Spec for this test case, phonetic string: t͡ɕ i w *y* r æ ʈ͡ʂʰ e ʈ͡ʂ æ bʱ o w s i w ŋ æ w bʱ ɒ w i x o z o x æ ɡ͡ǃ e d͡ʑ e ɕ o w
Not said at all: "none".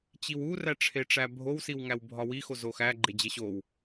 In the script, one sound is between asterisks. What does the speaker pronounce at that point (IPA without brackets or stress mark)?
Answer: u